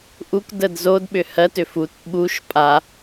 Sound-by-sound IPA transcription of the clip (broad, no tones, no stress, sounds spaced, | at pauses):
ʔ u k d ə d z o d ɓ ʏ h ɜ t ʏ f u t ɓ u ʃ pʼ a